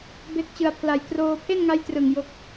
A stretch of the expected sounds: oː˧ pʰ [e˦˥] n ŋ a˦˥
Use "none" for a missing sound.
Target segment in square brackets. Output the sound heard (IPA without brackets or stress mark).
e˥˩